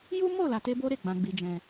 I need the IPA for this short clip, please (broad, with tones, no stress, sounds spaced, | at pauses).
j u˦ m o˦˨ l a˧ t e˦ b o˦ ɾ e˦˨ ɡ͡b ã˧ ɡ͡b i˧ d͡ʒ ɛ̃˧